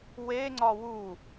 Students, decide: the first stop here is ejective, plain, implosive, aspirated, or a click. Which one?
click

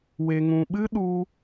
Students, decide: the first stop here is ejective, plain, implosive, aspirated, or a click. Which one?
implosive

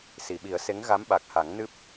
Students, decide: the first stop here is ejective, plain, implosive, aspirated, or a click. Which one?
implosive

